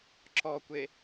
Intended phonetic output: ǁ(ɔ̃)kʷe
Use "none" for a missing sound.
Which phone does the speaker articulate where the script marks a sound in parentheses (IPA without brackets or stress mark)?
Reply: ɔ